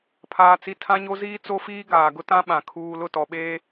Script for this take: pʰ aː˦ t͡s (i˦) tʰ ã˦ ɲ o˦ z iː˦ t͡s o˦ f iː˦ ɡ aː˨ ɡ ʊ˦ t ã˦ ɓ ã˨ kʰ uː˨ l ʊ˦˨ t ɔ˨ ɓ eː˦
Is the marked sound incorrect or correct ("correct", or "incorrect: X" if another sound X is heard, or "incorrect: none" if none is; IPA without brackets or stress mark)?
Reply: correct